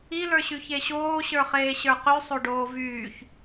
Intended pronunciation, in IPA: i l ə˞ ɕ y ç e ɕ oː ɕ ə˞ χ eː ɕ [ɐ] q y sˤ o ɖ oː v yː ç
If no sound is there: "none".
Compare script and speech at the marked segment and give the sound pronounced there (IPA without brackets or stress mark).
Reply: ə˞